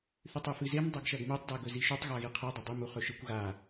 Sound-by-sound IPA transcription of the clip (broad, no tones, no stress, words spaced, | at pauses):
θʉtˤʉfɨzem dˤɐɡʃɐɡmetˤ daɡɵziʃʉtˤ ɣaɣiqʰi dˤɐdˤɨ muχɵʃɨkʷ ɣa